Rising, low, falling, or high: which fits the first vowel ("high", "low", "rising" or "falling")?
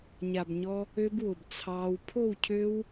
low